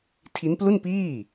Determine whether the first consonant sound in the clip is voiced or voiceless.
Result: voiceless